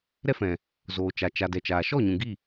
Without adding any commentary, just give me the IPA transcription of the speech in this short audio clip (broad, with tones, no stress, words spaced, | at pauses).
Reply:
ɾɛ˦fɛ̃˨ | zoː˨t͡ʃa˨ t͡ʃa˨ dɛ˨t͡ʃaː˨ ʃɔ˦˨ɲũ˨ ɡi˦˨